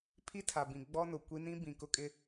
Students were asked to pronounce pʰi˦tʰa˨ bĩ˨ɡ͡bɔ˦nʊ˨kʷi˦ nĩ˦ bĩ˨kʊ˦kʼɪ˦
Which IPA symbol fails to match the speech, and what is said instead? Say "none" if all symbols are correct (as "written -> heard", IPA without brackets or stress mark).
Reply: none